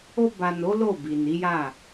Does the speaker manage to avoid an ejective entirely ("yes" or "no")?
yes